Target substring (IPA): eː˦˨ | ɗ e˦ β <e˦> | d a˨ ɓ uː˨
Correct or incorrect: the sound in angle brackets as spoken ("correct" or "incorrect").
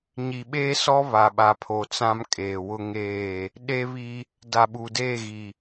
incorrect